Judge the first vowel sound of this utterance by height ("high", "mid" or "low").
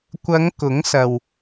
low